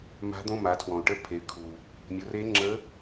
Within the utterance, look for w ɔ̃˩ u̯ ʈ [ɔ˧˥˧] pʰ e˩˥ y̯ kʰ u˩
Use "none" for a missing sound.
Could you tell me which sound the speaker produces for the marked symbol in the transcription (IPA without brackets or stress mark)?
ə˧˥˧